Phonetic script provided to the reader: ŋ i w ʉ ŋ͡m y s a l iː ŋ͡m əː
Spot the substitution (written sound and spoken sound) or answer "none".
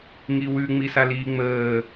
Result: y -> i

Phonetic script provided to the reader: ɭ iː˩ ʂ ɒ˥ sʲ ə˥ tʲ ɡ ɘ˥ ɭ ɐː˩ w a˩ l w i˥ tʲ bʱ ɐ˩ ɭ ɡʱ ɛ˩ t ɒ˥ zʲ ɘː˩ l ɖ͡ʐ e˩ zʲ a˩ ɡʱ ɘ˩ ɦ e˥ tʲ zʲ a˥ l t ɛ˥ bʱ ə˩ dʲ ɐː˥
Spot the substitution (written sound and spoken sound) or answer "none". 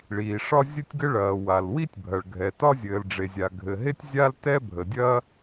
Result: sʲ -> zʲ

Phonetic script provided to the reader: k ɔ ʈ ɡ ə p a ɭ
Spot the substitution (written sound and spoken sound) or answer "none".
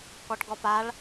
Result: ə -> ɔ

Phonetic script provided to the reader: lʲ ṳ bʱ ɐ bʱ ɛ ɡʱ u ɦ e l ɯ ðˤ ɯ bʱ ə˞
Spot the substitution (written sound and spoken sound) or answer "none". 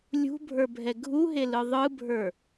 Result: ɐ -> ə˞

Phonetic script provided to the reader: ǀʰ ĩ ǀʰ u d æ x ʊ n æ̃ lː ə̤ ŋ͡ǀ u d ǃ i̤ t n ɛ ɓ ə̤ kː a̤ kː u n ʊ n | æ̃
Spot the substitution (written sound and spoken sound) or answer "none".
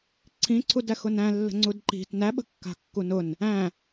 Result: ɛ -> æ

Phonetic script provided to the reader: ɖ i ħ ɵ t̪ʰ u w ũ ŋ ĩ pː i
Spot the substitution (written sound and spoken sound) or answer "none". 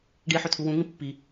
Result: none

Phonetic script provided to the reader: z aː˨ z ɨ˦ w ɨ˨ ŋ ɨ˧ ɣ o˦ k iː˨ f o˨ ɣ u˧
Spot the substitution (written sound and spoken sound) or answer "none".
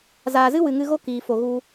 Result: none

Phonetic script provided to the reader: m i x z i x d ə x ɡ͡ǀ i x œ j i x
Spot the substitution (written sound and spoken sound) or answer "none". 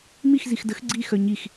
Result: j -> ɲ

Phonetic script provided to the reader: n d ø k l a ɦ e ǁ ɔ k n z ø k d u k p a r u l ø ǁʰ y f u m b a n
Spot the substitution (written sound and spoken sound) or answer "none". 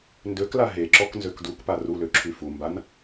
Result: none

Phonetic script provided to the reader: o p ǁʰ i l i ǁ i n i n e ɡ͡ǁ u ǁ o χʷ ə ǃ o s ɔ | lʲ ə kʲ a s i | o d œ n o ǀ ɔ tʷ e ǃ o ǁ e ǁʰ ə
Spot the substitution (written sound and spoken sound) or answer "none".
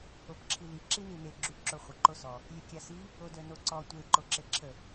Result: none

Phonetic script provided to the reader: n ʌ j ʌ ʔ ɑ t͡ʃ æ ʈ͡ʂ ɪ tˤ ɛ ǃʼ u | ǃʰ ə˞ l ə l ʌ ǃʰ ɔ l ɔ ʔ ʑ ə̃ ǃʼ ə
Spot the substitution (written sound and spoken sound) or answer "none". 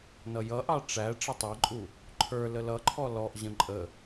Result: t͡ʃ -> ʈ͡ʂ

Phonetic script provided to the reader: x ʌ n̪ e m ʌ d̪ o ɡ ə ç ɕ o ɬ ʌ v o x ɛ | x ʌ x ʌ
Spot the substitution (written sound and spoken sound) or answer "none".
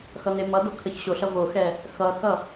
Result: ɡ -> kʰ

